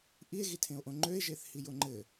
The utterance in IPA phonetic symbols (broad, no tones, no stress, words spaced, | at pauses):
ʔie̯ɣitʰẽo̯ʔõ ŋ͡ǃøe̯ʒeθ hijoŋ͡ǃɘ